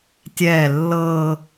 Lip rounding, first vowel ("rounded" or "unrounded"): unrounded